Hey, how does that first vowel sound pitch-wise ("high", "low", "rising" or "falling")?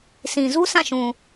low